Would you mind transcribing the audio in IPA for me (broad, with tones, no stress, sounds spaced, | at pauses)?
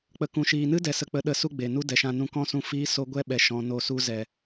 k͡p ə˨ k ũ˨ ʃ iː˨ n ɨ˦ d ɛ˨ s ə˨ k͡p ə˨˦ ɗ ə˨ s u˦ ɡ͡b e˨ n u˦ d ɛ˨ ʃ ã˧ n ũ˧ k ɔ̃˦ s ũ˧ f iː˦ s o˧ ɡʷ ɛ˦ ɓ ɛ˧ ʃ ɔ̃˧ n o˦˨ s u˧ z ɛ˨